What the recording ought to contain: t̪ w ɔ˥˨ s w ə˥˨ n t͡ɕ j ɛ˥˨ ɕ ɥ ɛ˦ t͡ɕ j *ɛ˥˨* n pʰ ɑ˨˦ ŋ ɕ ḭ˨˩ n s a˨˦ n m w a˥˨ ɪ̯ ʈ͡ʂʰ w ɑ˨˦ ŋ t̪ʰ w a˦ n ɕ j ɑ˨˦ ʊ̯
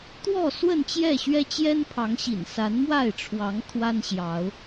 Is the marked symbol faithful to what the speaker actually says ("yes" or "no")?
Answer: no